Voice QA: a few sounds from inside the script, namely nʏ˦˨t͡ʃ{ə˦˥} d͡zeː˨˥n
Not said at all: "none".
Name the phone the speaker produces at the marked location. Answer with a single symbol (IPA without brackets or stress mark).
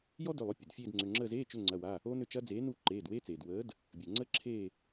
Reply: ɐ˦˥